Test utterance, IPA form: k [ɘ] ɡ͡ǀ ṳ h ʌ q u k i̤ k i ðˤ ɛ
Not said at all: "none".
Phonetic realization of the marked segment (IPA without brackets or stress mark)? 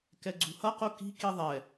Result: ɛ